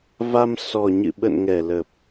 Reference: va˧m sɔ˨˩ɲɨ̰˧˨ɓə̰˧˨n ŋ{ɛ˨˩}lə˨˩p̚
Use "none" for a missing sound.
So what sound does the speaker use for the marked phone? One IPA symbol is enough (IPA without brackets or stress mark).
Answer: ɛ˧˩